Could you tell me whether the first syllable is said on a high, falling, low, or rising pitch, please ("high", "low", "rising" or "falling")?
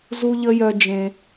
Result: high